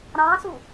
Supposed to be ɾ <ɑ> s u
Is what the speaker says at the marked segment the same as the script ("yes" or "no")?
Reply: no